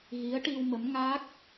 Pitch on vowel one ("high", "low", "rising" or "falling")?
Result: rising